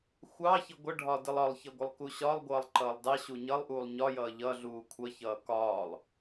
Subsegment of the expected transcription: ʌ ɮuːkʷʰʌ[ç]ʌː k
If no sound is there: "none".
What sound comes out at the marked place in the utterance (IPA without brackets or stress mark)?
ç